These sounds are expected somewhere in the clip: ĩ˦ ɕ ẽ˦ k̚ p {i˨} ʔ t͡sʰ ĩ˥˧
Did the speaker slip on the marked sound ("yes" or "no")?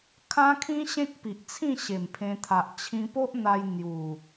no